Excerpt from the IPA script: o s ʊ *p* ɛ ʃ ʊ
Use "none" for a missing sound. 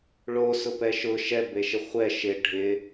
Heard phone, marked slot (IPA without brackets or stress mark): p